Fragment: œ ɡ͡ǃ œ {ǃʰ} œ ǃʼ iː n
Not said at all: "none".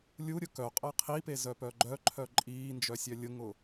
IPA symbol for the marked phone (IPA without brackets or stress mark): ǃʰ